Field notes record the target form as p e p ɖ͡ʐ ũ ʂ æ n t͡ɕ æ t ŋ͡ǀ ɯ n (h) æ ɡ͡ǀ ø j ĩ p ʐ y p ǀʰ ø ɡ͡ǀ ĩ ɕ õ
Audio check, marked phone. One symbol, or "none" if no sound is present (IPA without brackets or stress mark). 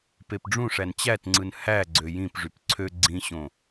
h